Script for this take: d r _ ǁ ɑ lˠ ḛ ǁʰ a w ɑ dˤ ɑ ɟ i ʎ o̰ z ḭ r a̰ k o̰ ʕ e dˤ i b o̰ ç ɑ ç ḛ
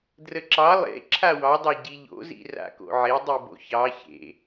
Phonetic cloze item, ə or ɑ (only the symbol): ə